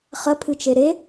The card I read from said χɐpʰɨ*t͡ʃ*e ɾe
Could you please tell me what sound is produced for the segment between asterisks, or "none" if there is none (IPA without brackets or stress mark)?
t͡ʃ